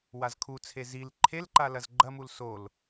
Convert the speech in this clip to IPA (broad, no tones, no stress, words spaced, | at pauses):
wazkʰut͡sʰe zil ǃʰel ǃalɐzɡ͡ǃɐmul sol